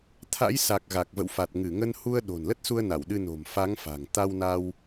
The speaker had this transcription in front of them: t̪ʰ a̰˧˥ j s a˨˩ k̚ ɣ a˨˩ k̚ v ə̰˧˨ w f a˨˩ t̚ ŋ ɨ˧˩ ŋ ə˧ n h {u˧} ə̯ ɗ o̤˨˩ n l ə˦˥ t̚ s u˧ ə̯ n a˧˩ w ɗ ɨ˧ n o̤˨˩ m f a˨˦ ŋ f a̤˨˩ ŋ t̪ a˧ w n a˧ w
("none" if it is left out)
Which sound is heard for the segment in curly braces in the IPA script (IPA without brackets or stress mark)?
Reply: u˧